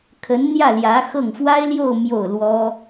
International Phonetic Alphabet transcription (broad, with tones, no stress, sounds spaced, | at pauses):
kʰ ə˧˥ n n̪ j ä˥˩ l j ä˧˥ x ɤ˥˩ ŋ f w a˥ ɪ̯ l j o˥˧ ʊ̯ m j o˥˩ ʊ̯ l w ɔ˥